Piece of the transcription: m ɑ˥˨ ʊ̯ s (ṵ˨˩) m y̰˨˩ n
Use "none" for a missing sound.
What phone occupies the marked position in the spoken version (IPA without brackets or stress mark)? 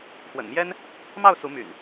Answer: u˨˦